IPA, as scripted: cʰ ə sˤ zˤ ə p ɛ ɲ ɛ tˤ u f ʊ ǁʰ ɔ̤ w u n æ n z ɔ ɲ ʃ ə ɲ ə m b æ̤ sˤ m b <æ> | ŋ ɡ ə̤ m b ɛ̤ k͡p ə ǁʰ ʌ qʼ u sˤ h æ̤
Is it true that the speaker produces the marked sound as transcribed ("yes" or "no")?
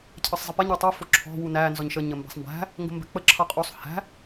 no